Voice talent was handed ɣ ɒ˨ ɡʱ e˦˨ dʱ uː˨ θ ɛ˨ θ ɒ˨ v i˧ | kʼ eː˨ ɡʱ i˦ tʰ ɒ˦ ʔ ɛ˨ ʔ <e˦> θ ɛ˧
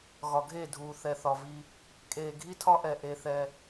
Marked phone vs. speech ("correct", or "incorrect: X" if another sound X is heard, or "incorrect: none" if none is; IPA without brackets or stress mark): incorrect: e˧